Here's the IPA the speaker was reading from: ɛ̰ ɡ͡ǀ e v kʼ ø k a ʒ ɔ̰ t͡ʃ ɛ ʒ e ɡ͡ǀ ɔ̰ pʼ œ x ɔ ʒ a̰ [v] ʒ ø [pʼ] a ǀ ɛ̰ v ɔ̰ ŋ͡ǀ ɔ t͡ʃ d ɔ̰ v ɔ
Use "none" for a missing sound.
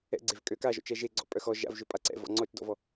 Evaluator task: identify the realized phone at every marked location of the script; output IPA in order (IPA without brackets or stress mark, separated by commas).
v, pʼ